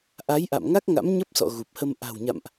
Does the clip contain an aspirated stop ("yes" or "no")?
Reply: no